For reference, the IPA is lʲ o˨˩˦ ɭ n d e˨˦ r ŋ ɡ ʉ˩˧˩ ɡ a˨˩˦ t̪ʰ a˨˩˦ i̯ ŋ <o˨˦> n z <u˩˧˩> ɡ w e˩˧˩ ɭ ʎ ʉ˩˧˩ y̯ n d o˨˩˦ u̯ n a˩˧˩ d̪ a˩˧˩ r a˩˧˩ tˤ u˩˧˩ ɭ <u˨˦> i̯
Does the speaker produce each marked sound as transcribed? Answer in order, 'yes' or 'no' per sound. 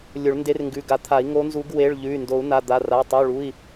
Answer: yes, no, no

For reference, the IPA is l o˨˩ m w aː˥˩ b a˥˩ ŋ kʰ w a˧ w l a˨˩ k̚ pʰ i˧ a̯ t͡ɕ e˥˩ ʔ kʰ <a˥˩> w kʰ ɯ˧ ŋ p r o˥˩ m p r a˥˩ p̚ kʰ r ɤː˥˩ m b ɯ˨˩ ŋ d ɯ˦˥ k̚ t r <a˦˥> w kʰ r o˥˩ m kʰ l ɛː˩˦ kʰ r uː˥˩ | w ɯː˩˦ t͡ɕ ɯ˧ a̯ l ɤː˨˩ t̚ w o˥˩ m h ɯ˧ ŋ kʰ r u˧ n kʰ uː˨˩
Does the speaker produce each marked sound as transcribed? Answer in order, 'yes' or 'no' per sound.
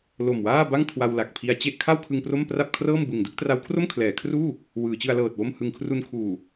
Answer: yes, yes

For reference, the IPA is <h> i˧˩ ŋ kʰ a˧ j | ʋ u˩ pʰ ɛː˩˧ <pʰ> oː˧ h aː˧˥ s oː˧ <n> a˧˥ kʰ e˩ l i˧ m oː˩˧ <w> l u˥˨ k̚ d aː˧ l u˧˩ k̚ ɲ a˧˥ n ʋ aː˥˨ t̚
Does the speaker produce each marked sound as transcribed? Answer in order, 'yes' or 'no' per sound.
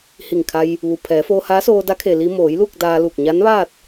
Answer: yes, no, no, no

